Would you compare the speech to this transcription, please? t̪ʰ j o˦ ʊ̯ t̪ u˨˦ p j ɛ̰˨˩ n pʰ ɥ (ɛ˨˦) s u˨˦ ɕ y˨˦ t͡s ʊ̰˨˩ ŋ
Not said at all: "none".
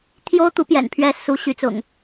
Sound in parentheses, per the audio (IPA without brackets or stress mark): ɛ˨˦